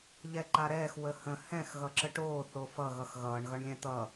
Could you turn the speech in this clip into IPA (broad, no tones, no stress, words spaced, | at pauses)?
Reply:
ʎɛǃaɾɛːx wəhə̃ hɛ̃x ɣʌǁəʈoː θofʌ ɣʌxɣʌːɳ ɣʌɳlʲɛ̃t̪ʌ